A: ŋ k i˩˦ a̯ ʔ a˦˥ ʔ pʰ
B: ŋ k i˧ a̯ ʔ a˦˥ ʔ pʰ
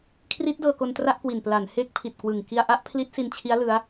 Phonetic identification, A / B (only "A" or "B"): B